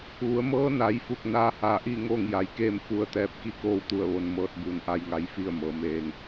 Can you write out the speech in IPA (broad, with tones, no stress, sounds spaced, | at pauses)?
ʋ u˩˧ ə̯ m ɤː˧˥ n a˩˧ j f u˧˩ k̚ n aː˧˥ h aː˧˩ ʔ i˥˨ ŋ oː˥˨ ŋ j a˩˧ j k eː˥˨ m f u˧˥ ə̯ t̪ ɛː˧ p̚ k i˥˨ k oː˥˨ w t̪ u˥˨ ə̯ ʋ o˧ n m ɤː˧ t̚ b uː˩ n ʔ a˧ j ŋ a˧˥ j f i˥˨ ə̯ m ɤː˩˧ m eː˧ ŋ